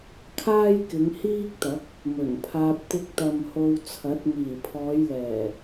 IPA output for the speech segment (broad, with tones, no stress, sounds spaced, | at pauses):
kʰ aː˥ j k ɪ˨˧ ŋ h iː˥ k̚ t̪ ɐ˨˥ k̚ | m ɵ˨˩ n pʰ aː˧ p̚ t̪ ɪ˧ k̚ t̪ ɐ˨ m h o˧ w t͡sʰ ɐ˨˥ t̚ m iː˨˩ pʰ ɔː˨˧ j l ɛː˨˩